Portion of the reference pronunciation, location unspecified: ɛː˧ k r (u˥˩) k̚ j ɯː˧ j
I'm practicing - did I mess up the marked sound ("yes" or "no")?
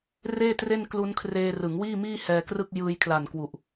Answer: yes